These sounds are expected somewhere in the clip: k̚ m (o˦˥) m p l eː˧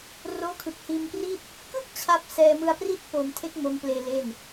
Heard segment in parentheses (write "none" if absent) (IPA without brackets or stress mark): o˦˥